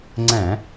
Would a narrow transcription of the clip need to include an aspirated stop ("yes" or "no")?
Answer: no